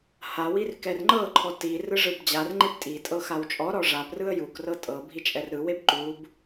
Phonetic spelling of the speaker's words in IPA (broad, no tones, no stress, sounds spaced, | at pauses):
h a w i r k ɛ r ŋ͡ǃ ɤ ǃʰ ɔ t i r ɯ ʐ ɯ b d͡ʑ a r ŋ͡ǃ e p tʼ i tʼ ɤ x a w t͡ʃʼ ɔ ɾ ɔ ʐ a p r ɯ ə̯ j u k r ɤ tʼ ɤ bʱ i t͡ʃʼ ɛ r ɾ ɯ w e b ǃ u b